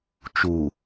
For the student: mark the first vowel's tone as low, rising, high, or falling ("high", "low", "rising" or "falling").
low